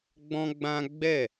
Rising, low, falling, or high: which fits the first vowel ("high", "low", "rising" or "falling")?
high